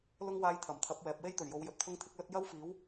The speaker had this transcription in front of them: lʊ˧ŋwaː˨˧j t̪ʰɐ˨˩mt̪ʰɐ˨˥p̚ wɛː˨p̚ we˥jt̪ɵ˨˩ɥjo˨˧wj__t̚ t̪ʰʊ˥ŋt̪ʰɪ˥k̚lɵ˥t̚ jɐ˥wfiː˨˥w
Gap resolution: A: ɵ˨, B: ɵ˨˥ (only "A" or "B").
A